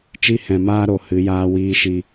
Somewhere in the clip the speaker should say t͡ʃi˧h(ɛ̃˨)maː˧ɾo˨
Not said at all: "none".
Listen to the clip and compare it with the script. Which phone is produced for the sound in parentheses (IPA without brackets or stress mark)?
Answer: ɛ̃˨